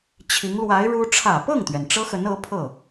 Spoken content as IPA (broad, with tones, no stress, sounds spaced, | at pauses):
t͡ɕʰ i˧˥ ŋ l w a˧˥ ɪ̯ ɻ u˥ ʈ͡ʂʰ ä˨˩ p ɤ˥˩ ŋ t̪ ɥ ɛ˩ n ʈ͡ʂ ɤ˥ x ə˧˥ n ɤ˧˥ pʰ ɤ˥˩